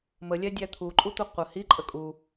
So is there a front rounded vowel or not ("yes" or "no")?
no